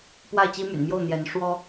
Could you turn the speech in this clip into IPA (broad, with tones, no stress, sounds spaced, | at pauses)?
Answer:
p w a˥˩ ɪ̯ t͡ɕ i˥ m y̰˨˩ n m j o˥˩ ʊ̯ n̪ j ɛ˧˥ n ʂ w ɔ˥